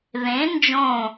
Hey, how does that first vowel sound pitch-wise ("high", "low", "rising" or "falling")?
rising